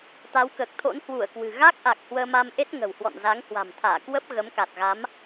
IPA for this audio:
t̪ a˨˦ w k əː˨˩ k̚ t̪ʰ o̰˧˥ n h w u˧˩ ə̯ k w ɨ̤˨˩ ɣ a˦˥ k̚ ʔ a˨˩ k̚ h w əː˧ m a˧ m ʔ e˦˥ t̚ ŋ ə̤˨˩ w h w ɔ̰˧˨ n z a˨˦ ŋ h w a̤˨˩ m t̪ʰ aː˧˩ k w ə˦˥ p̚ ɣ ə˨˦ m k a˨˩ t̚ ɣ a˨˦ m

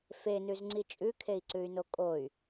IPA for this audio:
f e n ʉ z ŋ͡ǀ i t͡ʃʼ ʉ kʰ e i̯ ǀ ʉ y̯ n o kʼ o y̯

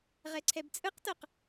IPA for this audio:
ʁ ɛ ǀʰ ɛ b t͡sʼ ɯ q t ɤ q

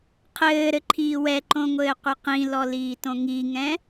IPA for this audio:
qʰ ɘː ɾ ɘ ǃʰ iː w ɛ ǃ õ ŋʷ ɘː qʷ ɘ q ĩ l ɔ l iː t õ ŋ i ŋ ɛ̃

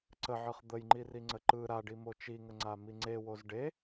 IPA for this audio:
ǀ ə ʕ ɯ χ d̪ ə j ŋ͡ǃ i r i ŋ͡ǀ ə ǃ ɯ ɾ a ɖ i m o t͡ʃ i ŋ ə ŋ͡ǀ a m i ŋ͡ǀ e w o z ɖ e

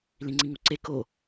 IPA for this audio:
l ĩ ŋ͡ǀ ĩ ŋ u ǀ e k o

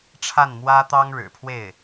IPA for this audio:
ʈ͡ʂʰ a˥˩ n m w ä˥ t̪ ɑ˥ ŋ ɻ ɻ̩˨˩ pʰ w e˥˩ ɪ̯

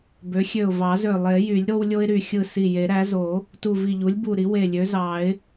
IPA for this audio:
b ø˩˥ xʲ ø˧˩ ʊ̯ v ɑ˨˩˦ z ø˧˩ lˠ e˨˩˦ j y˨˩˦ lʲ ɾ o˦ w lʲ o˦ ɪ̯ ɾ y˧˩ xʲ ɯ˧˩ s i˧˩ j e˨˩˦ ɾ æ˩˥ z o˨˩˦ | t u˧˩ v i˧˩ ʎ u˩˥ lʲ b u˧˩ ɾ i˩˥ w e˧˩ lʲ ø˩˥ z ɑ˨˩˦ ɪ̯

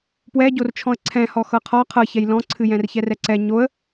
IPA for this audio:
p w ɛ ɟ o r t͡ʃʰ ɔ̃ ə̯ ǀʰ ɛ̃ h ɔ x ɤ qʰ ɔ qʰ ɤ ç ɛ j l ɔ̃ ǀʰ ɨ j ɛ̃ r ç ɛ r ɛ ǀ ɛ ɲ o ə̯

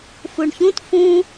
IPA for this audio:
f u ɳ ç ũ t f ũ

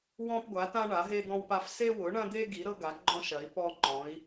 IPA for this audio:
w ɔ̃˧ p ɡʷ a˩˧ t ã˧ ɳ a˩˧ ɦ e˧ d̪ ɔ̃˧ w p a˧ f s e˧ w ʊ˩˧ ɳ ɐ̃˧ d̪ e˧ ɡ i˩˧ ɾ ɤ˧ ɡ a˩˧ ɡ͡ǃ ɔ̃˧ ʃ ɐ˩˧ i̯ p ɔ˧ ŋ͡ǃ ɔ̃˩˧ i̯

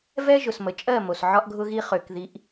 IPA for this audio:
v ɛ˦ ʒ ʊ˨ s m ə˨ t͡ʃʼ ɜ˦˨ m o˨ s ʕ ɒ˦ ʔ ɡʱ ʊ˦ ɣ i˦ χ ø˨ k ð i˨˦ ʔ

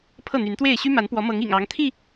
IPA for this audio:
pʰ ɤ˥˨ n̪ y˨˦ n t̪ w e˥˨ ɪ̯ ɕ y˦ m a˨˦ n p w ɔ˨˦ m ɤ˨˦ ŋ ḭ˨˩ ŋ ɑ˨˦ ŋ t̪ʰ i˥˨

